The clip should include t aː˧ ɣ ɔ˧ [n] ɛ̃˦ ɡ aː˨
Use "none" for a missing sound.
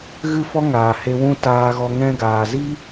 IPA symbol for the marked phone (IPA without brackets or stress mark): ŋ